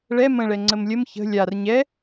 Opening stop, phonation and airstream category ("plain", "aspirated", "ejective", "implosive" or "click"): click